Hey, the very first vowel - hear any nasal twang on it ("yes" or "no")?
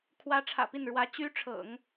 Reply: no